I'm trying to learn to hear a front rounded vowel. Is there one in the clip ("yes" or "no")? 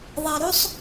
no